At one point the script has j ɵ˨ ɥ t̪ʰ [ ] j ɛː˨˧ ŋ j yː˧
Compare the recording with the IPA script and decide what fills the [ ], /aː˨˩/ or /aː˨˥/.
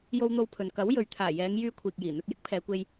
aː˨˩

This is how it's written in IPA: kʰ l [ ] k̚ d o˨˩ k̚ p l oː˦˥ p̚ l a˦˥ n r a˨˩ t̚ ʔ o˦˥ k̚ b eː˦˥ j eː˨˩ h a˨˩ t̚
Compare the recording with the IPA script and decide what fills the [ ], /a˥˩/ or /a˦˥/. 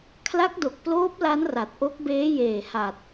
a˦˥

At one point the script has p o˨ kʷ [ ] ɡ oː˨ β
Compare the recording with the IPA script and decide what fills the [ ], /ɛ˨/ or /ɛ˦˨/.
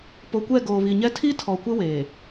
ɛ˦˨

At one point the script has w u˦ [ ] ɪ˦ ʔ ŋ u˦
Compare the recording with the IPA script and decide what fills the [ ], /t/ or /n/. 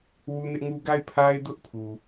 n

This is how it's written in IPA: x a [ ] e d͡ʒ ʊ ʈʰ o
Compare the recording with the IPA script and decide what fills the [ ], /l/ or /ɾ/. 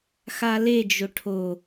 l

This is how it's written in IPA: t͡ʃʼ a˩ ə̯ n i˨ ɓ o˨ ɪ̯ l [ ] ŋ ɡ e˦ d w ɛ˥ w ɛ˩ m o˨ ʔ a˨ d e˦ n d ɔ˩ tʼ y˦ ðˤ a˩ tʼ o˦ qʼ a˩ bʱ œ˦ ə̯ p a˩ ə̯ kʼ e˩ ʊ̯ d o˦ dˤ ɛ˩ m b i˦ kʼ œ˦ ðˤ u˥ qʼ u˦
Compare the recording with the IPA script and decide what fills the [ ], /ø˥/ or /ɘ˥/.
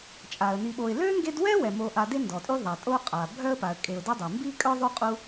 ø˥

